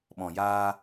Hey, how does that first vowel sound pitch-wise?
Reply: low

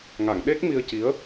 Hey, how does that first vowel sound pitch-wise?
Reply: low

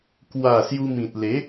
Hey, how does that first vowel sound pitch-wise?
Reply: falling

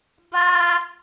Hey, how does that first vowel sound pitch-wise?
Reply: high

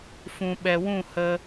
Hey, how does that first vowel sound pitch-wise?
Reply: low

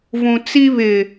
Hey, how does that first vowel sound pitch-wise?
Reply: low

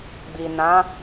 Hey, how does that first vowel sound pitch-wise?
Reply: low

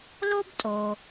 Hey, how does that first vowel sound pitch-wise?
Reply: high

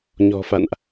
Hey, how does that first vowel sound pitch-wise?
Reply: low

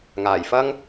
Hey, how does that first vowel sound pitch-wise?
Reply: low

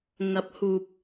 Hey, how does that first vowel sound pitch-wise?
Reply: rising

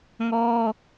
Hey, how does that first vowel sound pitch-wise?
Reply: high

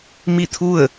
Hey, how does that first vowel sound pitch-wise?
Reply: falling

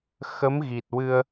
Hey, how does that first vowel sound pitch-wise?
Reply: rising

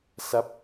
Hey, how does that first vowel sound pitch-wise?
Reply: falling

